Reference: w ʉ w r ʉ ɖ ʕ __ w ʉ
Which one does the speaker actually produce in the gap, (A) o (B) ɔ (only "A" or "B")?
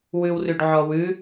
B